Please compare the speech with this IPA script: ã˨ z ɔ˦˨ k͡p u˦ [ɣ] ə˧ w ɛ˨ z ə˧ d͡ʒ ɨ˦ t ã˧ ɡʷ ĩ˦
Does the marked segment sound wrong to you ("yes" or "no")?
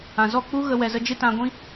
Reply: no